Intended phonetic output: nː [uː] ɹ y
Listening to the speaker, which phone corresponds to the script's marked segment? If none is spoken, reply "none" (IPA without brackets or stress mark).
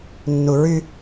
u